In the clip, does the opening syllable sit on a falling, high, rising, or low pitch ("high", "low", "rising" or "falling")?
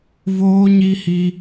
high